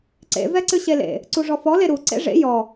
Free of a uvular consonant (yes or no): yes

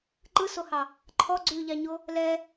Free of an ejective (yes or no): yes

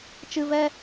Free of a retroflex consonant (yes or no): yes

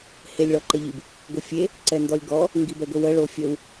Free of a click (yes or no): no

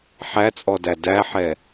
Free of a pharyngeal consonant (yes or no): no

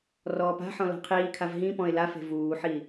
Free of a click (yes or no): yes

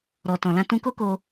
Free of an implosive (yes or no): yes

